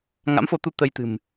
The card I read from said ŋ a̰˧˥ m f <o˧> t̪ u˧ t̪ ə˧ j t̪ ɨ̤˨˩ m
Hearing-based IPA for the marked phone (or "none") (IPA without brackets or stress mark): o˧